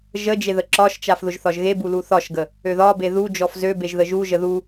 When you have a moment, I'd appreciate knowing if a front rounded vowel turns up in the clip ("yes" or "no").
yes